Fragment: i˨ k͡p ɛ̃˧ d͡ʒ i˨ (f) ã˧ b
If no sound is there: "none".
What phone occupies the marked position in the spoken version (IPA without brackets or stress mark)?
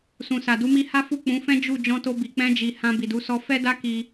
h